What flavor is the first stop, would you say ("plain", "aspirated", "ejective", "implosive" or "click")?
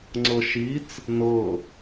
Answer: click